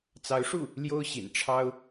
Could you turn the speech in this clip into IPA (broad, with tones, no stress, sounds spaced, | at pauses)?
t͡s ɑ˧˥ ʊ̯ ʂ u˥˩ | l j o˥ ʊ̯ ɕ ḭ˨˩ n ʈ͡ʂʰ ɑ˥ ʊ̯